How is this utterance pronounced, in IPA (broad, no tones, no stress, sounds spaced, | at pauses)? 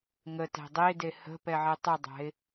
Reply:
ŋ ə t æ̤ dˤ e d e h ə̤ p ɛ ʕ e tˤ ɯ dˤ æ̤ ɪ̯